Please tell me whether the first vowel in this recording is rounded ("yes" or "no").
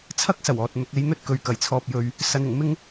no